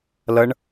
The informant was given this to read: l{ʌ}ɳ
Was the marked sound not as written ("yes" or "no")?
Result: no